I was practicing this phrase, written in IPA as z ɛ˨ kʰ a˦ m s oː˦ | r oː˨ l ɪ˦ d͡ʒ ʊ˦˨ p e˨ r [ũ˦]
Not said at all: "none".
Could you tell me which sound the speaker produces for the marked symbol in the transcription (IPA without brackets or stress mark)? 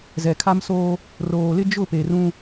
ũ˦